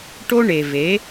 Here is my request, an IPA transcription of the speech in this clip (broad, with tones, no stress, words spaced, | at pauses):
ʈo˦ɳe˨ve˨˦